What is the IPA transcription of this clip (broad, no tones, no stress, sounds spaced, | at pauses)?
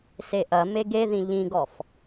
s e ʔ ɐ m e ɡ e ð ĩ ʎ ĩ ɡ ɔ f